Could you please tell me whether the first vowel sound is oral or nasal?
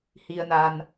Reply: oral